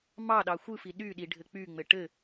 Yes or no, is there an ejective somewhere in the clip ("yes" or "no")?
no